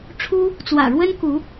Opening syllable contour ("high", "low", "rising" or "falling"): high